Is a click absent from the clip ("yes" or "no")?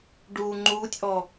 no